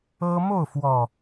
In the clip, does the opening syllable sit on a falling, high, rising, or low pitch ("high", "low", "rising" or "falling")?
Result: high